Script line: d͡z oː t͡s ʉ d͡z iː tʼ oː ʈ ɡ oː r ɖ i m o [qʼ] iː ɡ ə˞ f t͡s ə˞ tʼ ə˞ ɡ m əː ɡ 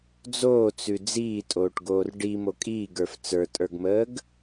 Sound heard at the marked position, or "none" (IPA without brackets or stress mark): kʼ